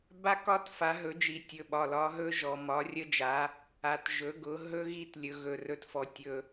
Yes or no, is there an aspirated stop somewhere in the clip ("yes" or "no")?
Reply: no